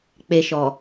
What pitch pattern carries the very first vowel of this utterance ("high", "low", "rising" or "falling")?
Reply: low